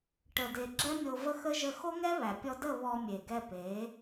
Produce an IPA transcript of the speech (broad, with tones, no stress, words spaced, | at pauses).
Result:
ʈə˨de˨ ɡ͡ǁɛ˦mʲo˧və˦xə˦ ʒə˧xo˦ŋɛ˦βæ˨ pʲɔ˧də˦˨ βɔ˧mʲe˨ɡɛ˧pe˨˦